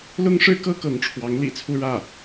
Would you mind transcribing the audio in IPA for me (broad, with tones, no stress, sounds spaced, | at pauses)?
l ʊ˥ ŋ ʂ ɻ̩˥ k ɤ˥ k ɤ˧˥ ŋ ʈ͡ʂʰ w ɑ˧˥ ŋ l ḭ˨˩ t͡sʰ u˥ ɻ ä˥˩